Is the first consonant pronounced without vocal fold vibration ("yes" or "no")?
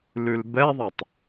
no